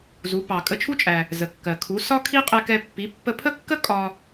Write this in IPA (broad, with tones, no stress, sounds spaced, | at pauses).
z u˩˥ p ɑ˩ kʼ ə˧ t͡ʃʰ u˥ t͡ʃʼ æ˩ | z ə˩ kː ɜ˩ kʰ u˩˥ s ɒ˥ kʰ i˥ qʼ ɛ˧ k ɛ˧ pː i˩˥ pː ə˧ pʰ ə˥ kː ə˥ kʼ ɒ˧